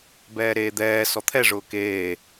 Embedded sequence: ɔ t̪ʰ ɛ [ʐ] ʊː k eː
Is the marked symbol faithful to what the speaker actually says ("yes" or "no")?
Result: yes